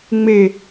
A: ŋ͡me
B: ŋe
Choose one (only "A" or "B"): A